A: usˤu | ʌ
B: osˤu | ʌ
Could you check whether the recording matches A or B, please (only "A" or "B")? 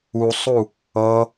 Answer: A